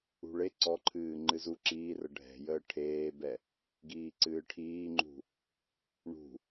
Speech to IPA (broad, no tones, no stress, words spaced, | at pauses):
ṳɭe ǀɔǃʰɨː ŋ͡ǃɨzu ǁiːrə ɖʱɛ̤jəː ʈʰeːbɛ | ɡiːǀɨːʈʰiːŋ͡ǃṳ | ɳṳ